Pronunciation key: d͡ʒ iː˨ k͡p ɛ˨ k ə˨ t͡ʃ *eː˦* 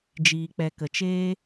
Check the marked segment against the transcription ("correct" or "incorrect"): correct